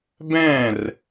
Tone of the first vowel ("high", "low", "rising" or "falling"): falling